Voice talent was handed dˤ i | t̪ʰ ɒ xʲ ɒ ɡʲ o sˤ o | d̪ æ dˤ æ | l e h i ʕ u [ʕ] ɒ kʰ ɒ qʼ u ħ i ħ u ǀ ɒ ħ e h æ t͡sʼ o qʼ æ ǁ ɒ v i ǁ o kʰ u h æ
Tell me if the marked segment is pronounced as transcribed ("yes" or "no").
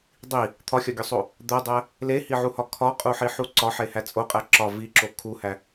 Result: no